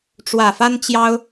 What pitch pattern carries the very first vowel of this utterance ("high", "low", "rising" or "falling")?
low